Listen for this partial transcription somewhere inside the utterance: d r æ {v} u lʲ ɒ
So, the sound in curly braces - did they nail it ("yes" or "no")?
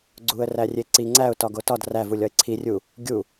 yes